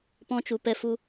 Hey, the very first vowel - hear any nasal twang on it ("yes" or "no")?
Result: yes